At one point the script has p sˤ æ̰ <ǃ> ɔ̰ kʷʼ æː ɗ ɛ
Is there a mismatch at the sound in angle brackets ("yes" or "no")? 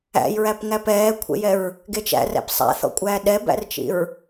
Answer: yes